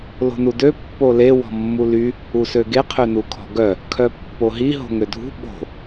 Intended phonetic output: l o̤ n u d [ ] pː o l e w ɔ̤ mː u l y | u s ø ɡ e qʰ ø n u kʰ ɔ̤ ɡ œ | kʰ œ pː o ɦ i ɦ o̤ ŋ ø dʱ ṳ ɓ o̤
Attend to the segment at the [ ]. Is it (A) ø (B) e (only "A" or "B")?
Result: A